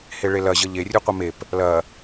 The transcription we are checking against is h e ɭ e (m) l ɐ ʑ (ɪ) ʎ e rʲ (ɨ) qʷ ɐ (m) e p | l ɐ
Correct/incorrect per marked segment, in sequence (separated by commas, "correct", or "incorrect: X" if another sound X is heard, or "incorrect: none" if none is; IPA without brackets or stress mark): incorrect: none, incorrect: ə, correct, correct